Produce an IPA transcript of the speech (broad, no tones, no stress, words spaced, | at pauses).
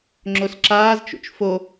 ŋ͡ǁosǁaːzt͡ʃṵt͡ʃ fo